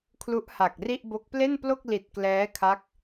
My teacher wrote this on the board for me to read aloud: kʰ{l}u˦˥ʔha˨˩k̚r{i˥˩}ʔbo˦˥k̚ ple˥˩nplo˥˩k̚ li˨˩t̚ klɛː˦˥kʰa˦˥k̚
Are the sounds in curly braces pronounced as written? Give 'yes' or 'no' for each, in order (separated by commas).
yes, yes